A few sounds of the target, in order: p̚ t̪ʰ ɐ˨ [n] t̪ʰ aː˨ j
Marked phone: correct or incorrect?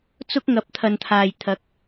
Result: correct